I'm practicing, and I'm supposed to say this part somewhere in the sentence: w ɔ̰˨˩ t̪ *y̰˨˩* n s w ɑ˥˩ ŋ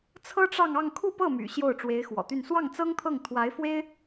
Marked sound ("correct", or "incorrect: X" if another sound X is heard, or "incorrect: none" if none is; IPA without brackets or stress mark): incorrect: y˥˧